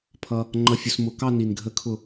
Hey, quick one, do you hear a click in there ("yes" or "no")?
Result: yes